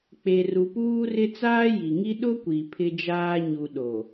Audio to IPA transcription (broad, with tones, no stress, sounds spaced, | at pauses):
k͡p e˨ r u˨ p uː˦ r ɪ˦ t͡s aː˦ j i˨ ŋ i˦ ɗ ʊ˦ kʷ i˨ pʰ ɪ˦ d͡ʒ aː˦ ɲ u˨ ɗ o˨